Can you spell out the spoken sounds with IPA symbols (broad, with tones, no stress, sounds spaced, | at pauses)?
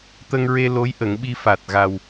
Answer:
t̪ ə˧ ŋ ɹ e˧ l o˧˥ j ʔ ə˨˩˦ ŋ ɓ i˧ f a˨˩ t̚ ɣ a˨˩ w